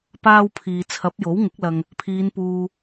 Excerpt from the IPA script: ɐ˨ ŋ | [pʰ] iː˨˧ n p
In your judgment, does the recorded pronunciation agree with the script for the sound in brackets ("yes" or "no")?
yes